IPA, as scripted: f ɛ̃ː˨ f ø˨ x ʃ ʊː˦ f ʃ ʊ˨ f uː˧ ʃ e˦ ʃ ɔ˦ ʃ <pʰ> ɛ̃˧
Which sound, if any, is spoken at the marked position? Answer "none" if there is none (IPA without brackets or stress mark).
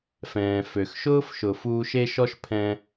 pʰ